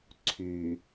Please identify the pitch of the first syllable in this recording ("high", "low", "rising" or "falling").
low